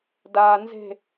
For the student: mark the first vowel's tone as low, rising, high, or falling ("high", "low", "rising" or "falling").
low